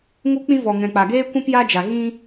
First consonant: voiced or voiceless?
voiced